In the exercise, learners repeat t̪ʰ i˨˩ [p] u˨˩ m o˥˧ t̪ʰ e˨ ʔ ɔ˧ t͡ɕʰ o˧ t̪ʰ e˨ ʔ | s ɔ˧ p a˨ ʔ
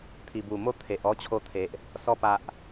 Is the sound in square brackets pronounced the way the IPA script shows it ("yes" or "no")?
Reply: no